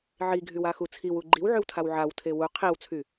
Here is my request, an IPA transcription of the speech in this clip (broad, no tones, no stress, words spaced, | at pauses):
ʕiɡʱywaxu t͡sʰiwu ɡ͡ǃiwʕywtʰaw ʕawtʰe wu qʰiwt͡sʰy